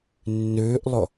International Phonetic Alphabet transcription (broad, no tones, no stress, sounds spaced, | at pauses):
nː ʉː ʔ lˠ ʊ